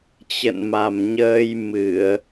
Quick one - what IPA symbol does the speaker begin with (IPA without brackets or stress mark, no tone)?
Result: t͡ɕ